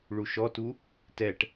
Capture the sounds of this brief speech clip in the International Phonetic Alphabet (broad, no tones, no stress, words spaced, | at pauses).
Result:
ɭuʃɔtu | tɛʈ